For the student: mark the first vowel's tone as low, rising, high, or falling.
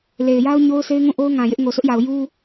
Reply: low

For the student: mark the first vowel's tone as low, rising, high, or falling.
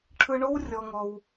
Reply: high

